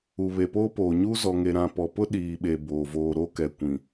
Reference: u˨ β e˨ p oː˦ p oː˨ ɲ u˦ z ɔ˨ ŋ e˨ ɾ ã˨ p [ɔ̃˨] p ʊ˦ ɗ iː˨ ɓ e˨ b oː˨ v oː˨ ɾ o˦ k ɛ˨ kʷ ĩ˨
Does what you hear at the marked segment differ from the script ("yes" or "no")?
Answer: yes